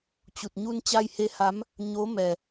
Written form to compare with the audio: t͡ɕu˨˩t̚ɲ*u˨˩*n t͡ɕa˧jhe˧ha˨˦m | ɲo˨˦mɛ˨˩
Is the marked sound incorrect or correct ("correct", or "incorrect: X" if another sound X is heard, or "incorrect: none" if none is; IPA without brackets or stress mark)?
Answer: incorrect: u˧